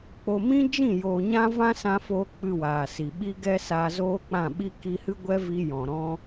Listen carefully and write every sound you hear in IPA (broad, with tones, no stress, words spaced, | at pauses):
k͡po˧ mĩ˦d͡ʒĩ˦˨ joː˨ɲã˧vã˧ sã˧foː˧ k͡pɨ˧waː˨si˨ ɓi˦ɡɛ˦ saː˧zoː˦k͡pã˦˨ɓi˦ ki˧hɨ˦ɡʷɛ˦vi˧ jɔ̃˨ɾɔ̃˦